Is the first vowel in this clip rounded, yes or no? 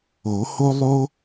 yes